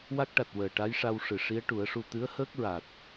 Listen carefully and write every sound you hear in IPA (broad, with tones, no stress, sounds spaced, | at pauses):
w a˦˥ k̚ ʈ a˨˩ t̚ w əː˨˩ ʈ a˧˥ j ʂ a˧ w ʂ ɨ˨˩ ʂ i˧˥ ə̯ ʈ u˨˩˦ ə̯ ʂ u˧ t̪ ɨ˧˥ ə̯ h əː˦˥ k̚ ɹ a˨˩ t̚